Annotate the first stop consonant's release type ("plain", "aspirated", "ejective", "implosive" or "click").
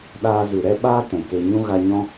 implosive